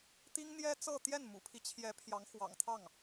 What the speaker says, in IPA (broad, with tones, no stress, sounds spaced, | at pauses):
t̪ i˥ ŋ n̪ j ɛ˥ t͡s ɤ˥˧ t̪ j ɛ˥˩ n m ṵ˨˩ pʰ i˦ t͡ɕʰ j ɛ˧˥ pʰ j ɑ˧˥ ŋ x w ɑ̰˨˩ ŋ t̪ʰ ɑ˥˩ ŋ